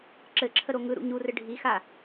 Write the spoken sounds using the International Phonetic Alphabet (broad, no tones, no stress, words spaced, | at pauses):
ǁɘǁʰəɾo ŋɯɾṵ ɲurɘ ɖʱixa